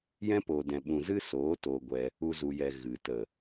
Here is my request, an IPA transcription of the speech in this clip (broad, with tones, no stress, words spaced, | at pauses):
jɛ̃˦poː˨ dɛ̃˨ɓũ˨ zɨ˦soː˨˦ toː˧ɡʷɛ˧ | u˧zu˨jɛ˨ ɣɨ˨ tə˨